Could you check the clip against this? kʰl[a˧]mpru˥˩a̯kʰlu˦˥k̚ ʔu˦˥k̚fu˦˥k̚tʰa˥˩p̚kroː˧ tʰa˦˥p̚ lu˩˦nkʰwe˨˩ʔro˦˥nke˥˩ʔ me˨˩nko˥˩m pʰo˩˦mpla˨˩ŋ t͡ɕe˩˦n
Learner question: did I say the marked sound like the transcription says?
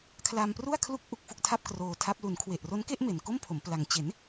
yes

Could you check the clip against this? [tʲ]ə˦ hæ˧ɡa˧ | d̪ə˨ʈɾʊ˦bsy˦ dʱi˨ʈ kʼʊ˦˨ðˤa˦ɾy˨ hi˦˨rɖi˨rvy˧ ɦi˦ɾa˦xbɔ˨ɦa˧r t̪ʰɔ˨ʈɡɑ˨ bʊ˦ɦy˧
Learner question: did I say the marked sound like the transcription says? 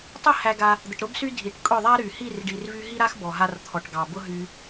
no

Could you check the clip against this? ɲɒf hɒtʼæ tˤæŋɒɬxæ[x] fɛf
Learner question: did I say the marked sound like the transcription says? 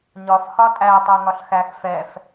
yes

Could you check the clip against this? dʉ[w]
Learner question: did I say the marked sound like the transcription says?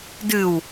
yes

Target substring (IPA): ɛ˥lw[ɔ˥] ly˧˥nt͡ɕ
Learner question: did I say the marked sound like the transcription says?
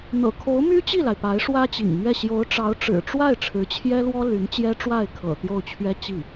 yes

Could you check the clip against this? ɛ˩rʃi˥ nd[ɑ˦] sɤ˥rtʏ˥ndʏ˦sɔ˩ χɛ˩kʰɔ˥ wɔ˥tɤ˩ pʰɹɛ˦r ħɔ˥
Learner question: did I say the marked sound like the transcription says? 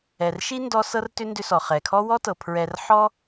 no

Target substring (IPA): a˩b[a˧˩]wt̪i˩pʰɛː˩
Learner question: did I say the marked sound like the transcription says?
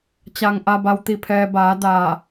no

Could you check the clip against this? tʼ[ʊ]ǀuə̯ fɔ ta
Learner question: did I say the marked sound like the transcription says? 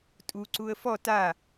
no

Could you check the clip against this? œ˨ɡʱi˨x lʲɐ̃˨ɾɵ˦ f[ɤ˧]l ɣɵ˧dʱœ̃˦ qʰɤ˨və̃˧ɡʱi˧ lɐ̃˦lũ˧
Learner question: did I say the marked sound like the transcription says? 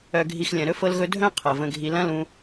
yes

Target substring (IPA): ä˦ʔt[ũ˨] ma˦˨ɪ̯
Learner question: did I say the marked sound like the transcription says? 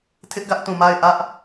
yes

